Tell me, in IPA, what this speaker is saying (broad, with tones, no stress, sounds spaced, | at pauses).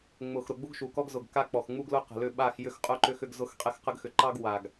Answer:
ŋ͡m ʊ˨ x ɾ ʊ˨ ɡ͡b u˦ ɡ ʃ u˨ k ɔ˦ ɡ z ʊ˨ ɡ k a˦ k͡p ɔ˨ x ŋ͡m u˦ ɡ l ʊ˦ q ə̤˨ l ʏ˦˨ ɓ a˦˨ x j ʏ˦ x qʼ ʊ˦ ǃ ʏ˦ x ʏ˦ ɡ z ʊ˦ x qʼ ɛ˦ x q ə˦ ɡ x ʏ˨ ǃ ɑ˦ ɡ w a˨ ɡ